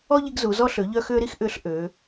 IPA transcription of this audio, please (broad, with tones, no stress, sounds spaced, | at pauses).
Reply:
ɔ˥ ʎ i˧ ɡ z u˩˧ z ɔ˧ ɬ ø˩˧ ʎ œ˧ x ʏː˧ ɾ i˥ x ʔ ʏː˧˥ ɬ ʔ ø˩˧